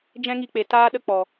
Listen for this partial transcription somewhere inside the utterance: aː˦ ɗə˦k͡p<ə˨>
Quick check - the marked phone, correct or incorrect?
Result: incorrect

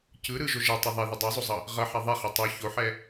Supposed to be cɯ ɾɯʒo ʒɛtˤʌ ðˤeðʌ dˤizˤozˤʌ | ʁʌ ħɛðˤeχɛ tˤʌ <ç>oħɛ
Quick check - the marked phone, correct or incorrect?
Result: correct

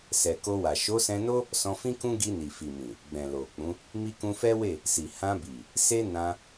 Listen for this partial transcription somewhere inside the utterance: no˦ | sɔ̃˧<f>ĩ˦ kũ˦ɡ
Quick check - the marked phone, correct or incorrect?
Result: correct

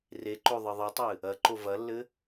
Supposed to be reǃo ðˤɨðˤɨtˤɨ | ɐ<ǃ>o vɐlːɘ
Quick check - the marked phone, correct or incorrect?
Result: correct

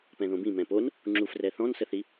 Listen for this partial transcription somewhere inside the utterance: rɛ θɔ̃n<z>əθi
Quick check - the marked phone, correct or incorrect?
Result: incorrect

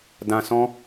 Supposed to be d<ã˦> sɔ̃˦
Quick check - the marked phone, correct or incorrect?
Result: correct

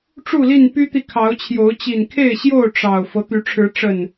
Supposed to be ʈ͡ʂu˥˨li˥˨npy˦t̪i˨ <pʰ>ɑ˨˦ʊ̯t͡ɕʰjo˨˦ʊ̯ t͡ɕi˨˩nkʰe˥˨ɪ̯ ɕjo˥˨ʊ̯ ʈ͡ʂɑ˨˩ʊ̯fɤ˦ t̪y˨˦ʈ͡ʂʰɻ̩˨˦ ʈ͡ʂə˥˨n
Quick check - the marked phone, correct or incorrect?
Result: incorrect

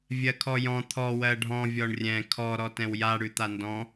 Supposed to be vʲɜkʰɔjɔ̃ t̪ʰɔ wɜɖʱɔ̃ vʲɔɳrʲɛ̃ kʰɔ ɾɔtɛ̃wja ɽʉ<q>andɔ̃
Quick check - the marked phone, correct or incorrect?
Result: incorrect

